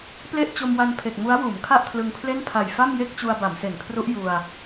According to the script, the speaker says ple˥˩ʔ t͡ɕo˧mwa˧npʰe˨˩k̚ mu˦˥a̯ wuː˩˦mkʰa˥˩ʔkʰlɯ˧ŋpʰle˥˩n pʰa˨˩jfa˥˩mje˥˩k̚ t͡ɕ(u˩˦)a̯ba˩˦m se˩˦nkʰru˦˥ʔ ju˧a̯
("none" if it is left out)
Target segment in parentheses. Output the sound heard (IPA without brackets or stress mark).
u˧